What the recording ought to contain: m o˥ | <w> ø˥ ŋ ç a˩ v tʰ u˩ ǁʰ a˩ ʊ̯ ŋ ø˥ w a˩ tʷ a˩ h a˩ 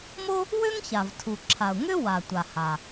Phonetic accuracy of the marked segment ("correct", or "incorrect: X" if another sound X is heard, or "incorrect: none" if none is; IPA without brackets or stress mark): correct